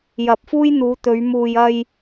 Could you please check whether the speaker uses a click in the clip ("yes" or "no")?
no